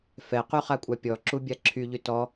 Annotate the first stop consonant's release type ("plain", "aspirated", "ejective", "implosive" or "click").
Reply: plain